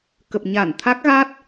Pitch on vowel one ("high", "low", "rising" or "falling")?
low